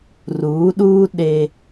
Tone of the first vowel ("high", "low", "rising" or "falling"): rising